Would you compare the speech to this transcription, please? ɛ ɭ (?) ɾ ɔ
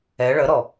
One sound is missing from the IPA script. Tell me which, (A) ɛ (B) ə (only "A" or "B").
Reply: B